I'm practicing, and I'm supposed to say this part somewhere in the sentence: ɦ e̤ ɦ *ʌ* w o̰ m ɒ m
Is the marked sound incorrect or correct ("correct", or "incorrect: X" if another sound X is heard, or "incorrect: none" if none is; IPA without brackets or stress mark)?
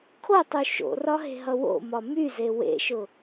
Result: correct